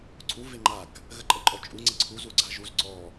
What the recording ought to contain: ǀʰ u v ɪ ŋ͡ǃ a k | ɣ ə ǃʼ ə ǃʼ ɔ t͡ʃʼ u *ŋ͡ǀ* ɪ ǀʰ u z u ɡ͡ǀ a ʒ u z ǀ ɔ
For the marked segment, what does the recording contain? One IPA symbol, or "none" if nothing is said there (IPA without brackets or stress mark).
ŋ͡ǀ